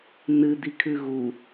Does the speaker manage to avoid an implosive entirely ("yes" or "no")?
yes